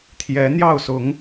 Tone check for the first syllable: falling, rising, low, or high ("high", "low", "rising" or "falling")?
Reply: rising